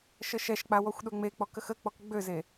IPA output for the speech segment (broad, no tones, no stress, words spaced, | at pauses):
ʃəʃɛʃk͡pa wɔxʷɗøŋ͡mek͡pɔk əxək͡pɔk ɡ͡bøze